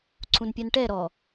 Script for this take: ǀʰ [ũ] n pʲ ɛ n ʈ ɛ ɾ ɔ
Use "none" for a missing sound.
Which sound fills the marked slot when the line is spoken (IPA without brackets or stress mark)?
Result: ũ